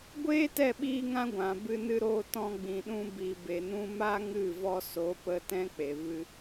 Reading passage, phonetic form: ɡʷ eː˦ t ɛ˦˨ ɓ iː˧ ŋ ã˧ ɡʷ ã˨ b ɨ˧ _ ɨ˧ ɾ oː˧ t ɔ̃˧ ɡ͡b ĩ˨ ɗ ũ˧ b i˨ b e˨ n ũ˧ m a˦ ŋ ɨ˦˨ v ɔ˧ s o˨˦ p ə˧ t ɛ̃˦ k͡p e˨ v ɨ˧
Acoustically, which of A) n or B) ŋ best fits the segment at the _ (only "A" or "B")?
A